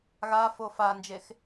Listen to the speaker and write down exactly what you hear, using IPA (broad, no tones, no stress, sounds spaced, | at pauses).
ɣ a f o f a n d͡ʒ e x